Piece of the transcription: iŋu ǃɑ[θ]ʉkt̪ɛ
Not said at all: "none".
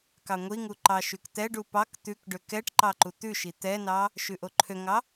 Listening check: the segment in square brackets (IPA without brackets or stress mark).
ʃ